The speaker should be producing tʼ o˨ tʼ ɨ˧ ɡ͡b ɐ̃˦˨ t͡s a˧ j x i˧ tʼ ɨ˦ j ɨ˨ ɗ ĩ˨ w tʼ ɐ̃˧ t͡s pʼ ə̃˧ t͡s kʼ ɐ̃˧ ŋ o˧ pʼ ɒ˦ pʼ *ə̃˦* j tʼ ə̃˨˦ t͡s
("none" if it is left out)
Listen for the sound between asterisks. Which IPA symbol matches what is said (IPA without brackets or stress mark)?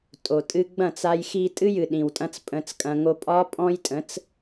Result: ɔ̃˦